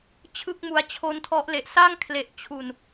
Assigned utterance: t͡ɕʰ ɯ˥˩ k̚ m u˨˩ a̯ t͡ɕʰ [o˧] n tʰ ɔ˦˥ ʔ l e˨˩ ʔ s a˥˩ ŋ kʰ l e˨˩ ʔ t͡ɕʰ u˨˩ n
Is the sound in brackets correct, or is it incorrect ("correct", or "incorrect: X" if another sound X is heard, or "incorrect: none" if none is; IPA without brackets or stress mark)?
incorrect: o˦˥